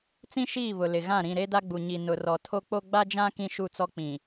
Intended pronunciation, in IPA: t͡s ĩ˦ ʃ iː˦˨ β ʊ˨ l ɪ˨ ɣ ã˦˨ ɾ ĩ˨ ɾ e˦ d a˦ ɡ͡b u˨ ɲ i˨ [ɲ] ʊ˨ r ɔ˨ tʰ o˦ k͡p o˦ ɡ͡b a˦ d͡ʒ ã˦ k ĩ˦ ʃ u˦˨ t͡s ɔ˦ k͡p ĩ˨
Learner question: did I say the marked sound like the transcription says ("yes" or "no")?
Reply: no